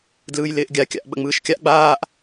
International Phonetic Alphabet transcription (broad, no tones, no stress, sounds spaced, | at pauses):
d l ɯː j l ɪː ʔ ɡʲ a kʲ a̰ ʔ ɓ ə̰ ŋ͡m ɯː ʃ kʲ a ʔ ɡ͡b aː ʔ